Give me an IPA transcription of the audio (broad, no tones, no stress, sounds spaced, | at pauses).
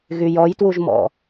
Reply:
ɣ y j ɔ j t w u ʒ m ɔ̰